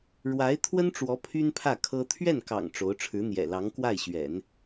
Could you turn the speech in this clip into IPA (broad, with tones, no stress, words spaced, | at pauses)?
ɻwa˧˥ɪ̯ t̪ʰwə˥nʈ͡ʂwɔ˧˥ pʰy˥npʰä˥˩ kʰɤ˥ t̪ʰɥɛ˥˩nkɑ̰˨˩ŋ ʈ͡ʂo˧˥ʊ̯ ʈ͡ʂʰɻ̩˧˥n̪jɛ̰˨˩ lɑ˧˥ŋkwa˥˩ɪ̯ɕɥɛ̰˨˩˦n